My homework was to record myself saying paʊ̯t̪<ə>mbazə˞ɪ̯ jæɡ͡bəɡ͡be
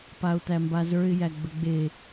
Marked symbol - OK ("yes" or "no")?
no